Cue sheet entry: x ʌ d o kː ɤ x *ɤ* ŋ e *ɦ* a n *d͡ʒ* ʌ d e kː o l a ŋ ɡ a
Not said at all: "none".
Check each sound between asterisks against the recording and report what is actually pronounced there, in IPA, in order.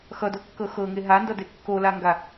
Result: ɤ, ɦ, d

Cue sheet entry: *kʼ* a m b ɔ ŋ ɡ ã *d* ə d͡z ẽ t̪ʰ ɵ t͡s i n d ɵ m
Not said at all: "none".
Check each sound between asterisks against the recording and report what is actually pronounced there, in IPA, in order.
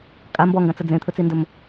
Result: kʼ, t͡s

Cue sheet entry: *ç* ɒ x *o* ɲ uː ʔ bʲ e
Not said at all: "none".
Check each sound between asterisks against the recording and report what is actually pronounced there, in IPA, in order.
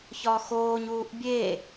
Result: ç, oː

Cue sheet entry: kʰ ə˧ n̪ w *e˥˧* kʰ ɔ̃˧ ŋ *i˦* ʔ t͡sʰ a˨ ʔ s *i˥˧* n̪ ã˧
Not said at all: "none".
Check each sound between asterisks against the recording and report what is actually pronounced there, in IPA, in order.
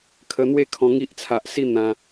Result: e˥˧, i˦, i˥˧

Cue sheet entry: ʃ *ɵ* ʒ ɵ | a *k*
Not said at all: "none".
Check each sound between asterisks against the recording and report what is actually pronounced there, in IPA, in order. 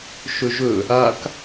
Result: ɵ, k

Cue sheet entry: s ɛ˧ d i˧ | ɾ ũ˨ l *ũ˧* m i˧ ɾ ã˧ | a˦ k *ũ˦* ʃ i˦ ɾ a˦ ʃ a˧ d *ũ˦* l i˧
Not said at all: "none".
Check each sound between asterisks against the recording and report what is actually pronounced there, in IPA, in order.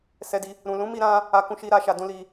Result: ũ˨˦, ũ˦, ũ˦

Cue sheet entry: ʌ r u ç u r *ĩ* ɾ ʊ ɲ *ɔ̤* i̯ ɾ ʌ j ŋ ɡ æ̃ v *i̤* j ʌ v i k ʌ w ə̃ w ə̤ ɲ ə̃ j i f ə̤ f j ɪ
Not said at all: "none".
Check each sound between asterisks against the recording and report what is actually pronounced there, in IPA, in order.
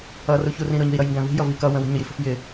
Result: ĩ, ə̤, i̤

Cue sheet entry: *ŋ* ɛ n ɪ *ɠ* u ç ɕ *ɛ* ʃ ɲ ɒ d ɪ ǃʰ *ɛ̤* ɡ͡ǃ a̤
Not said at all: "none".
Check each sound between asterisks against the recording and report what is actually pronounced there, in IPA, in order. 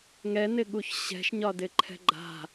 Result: ŋ, ɠ, ɛ̤, ɛ̤

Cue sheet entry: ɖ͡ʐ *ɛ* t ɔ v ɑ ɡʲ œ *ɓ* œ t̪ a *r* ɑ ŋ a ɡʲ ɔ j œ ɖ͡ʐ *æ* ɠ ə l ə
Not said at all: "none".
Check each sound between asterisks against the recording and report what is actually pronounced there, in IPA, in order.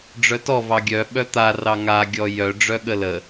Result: œ, ɓ, r, œ

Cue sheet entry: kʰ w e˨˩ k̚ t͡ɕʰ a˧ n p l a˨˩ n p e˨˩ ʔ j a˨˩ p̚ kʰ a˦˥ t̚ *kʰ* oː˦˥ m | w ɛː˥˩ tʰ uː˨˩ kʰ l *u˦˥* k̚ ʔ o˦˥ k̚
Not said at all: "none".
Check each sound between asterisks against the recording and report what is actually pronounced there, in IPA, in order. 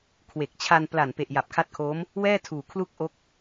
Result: kʰ, u˥˩

